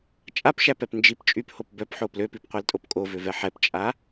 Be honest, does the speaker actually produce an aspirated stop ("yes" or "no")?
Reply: no